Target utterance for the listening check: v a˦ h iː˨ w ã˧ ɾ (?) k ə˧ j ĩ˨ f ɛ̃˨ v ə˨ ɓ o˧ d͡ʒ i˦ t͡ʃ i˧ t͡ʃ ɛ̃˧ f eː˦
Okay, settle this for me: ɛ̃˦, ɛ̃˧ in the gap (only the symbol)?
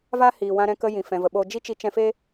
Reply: ɛ̃˧